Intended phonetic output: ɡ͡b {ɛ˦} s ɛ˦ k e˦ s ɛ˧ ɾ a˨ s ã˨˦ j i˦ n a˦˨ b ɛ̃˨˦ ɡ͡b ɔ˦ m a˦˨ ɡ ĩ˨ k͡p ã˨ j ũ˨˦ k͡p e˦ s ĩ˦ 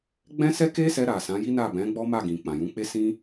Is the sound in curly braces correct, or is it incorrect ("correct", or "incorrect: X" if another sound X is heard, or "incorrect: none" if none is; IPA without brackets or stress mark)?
incorrect: ɛ̃˦